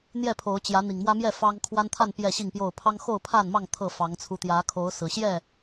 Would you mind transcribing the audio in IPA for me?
n̪ j ɛ˥˨ pʰ o˨˦ ʊ̯ t͡ɕ j ä˨˦ n̪ i˨˩ ŋ m w ä˦ m j ɛ˥˨ f ɑ˦ ŋ kʰ w a˦ n t̪ʰ a˥˨ n p j ɛ˥˨ ɕ i˥˨ ŋ p j o˥˨ ʊ̯ pʰ ɑ˦ ŋ x o˥˨ ʊ̯ pʰ a˥˨ n m ɑ˥˨ ŋ t̪ʰ ɤ˥˨ f ɑ˨˦ ŋ t͡sʰ u˨˦ t̪ j ä˨˦ kʰ o˨˦ ʊ̯ s ɹ̩˨˩ ɕ j ɛ˥˨

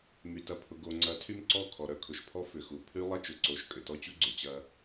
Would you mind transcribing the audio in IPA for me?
m y˨ t ɐ˨ pʰ ʊ˨ ɡ o˨ ŋ͡ǀ ɐ˨˦ tʰ y˦ m ǀ ɔ˦˨ kʰ ɔ˨ ɾ œ˨ kʰ ʊ˨ ʃ pʰ ɔ˦ f ʏ˨ x u˨ pʰ y˦ lˠ ɐ˦ t͡ʃ ʊ˨ ǀ o˨˦ ʃ kʼ ʏ˨ t ɔ˦ t͡ɕ u˦ ɡ͡ǀ ʏ˨ t͡ɕ ɐ˦

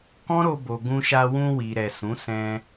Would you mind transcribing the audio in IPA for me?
k ɔ̃˦ ɾ o˧ b o˨ ɡ ũ˧ ʃ a˧ w ũ˧ w i˨ ɾ ɛ˨ s ũ˨˦ s ɛ̃˧

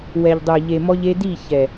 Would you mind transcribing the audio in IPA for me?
w ɛ˨ ʎ dˤ œ˨ ʎ e˨ m ɔ˧ ʎ e˧ d i˦˨ ç ɛ˨

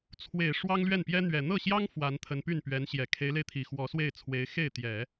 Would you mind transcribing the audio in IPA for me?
t͡sʰ w e˨˩ ɪ̯ ʂ w ɑ˥ ŋ l ɥ ɛ˥˩ n p j ɛ˥ n̪ ɥ ɛ˨˩ n̪ ɤ˥˩ ɕ j ɑ˥ ŋ f w a˧˥ n t̪ʰ ə˧˥ n p y˥˩ n p ɥ ɛ˧˥ n ɕ j ɛ˨˩ kʰ e˧˥ ɪ̯ l e˧ ɪ̯ t̪ʰ i˨˩ x w ɔ˧˥ s w e˥˩ ɪ̯ t͡sʰ w e˧˥ ɪ̯ x e˥˩ ɪ̯ t̪ j ɛ˨˩˦

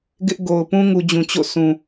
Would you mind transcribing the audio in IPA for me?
ɡ ɪ˦ ʔ ɡ o˨ ʊ̯ p ũ˦ ŋ u˨ d͡ʑ ũ˨ t͡ɕ o̰˦˨ s ũ˨

